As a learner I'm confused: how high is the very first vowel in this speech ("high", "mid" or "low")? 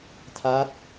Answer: low